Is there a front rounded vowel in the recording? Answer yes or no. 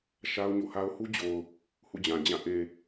no